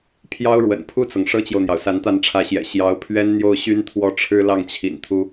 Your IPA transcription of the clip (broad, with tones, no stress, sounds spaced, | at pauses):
pʰ j ɑ˥ ʊ̯ ɻ w ə̰˨˩ n pʰ u˥˩ t͡s ɤ˩ ŋ ʂ ɤ˥ t͡ɕ j o˨ ʊ̯ n̪ j ɑ˩ ʊ̯ s a˧˥ n t̪ a˥˩ n ʈ͡ʂʰ ä˧˥ ɕ j ɛ̰˨˩ ɕ j ɑ˧˥ ʊ̯ pʰ ɥ ɛ˥ n n̪ j o˥˩ ʊ̯ ɕ y˥ n t̪ʰ w ɔ˥˩ ʈ͡ʂʰ ɻ̩˥ l ɑ˥˩ ŋ t͡ɕʰ ḭ˨˩ n t̪ʰ u˥